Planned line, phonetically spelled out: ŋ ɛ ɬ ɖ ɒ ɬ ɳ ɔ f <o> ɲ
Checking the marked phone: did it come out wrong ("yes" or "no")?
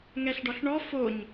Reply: no